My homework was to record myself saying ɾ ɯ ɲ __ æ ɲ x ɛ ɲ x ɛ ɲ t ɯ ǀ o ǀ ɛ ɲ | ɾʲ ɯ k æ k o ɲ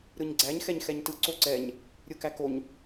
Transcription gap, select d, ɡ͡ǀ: ɡ͡ǀ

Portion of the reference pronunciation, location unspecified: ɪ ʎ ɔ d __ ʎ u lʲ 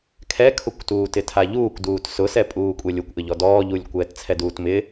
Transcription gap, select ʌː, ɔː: ɔː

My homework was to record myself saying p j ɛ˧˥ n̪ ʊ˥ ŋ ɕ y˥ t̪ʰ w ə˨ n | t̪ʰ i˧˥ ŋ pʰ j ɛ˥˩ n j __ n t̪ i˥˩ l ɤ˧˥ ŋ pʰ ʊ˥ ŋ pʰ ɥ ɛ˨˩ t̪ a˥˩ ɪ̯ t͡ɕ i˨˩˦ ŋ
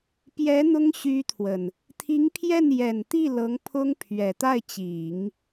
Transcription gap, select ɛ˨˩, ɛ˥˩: ɛ˨˩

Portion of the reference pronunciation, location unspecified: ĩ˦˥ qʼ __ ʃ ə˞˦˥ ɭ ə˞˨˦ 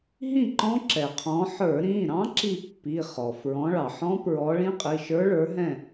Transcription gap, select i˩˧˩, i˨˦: i˩˧˩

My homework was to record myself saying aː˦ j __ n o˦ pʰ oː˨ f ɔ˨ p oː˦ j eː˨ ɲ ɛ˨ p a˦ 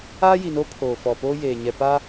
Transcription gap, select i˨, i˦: i˨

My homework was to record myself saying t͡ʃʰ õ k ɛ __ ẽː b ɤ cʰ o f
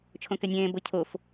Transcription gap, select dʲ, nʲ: nʲ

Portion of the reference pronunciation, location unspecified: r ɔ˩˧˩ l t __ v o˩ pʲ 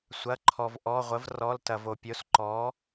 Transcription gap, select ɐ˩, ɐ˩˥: ɐ˩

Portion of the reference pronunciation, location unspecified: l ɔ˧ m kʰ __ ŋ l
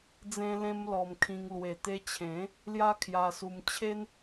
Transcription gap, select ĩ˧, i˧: ĩ˧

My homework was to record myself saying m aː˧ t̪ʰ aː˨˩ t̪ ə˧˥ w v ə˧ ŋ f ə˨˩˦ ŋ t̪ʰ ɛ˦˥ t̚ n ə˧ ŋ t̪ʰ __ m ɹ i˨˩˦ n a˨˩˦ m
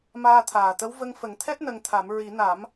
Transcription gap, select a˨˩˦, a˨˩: a˨˩˦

